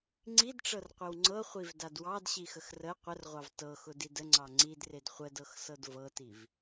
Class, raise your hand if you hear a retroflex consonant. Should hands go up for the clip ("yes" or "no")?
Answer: yes